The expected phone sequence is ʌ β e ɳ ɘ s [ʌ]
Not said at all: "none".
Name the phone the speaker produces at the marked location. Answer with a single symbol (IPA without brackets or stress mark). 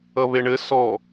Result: ɔ